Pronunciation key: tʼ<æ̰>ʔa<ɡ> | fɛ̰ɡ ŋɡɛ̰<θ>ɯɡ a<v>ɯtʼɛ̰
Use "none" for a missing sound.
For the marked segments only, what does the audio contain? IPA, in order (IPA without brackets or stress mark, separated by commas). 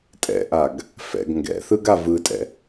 ɛ̰, ɡ, θ, v